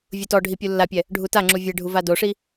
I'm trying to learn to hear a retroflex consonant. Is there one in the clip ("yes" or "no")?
yes